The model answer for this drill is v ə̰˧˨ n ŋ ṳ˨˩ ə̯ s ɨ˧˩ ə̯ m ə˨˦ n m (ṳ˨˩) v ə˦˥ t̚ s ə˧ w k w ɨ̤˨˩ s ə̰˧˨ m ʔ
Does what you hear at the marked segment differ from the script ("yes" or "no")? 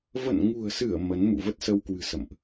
yes